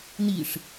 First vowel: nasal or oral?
oral